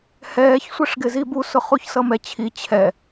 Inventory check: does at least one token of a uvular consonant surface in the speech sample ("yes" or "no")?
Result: yes